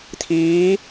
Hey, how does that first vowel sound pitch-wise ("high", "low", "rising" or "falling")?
rising